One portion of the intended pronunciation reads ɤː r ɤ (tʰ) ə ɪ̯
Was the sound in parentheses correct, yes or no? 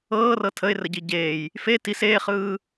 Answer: yes